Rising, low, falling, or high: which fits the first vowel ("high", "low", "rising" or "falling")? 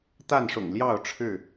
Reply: falling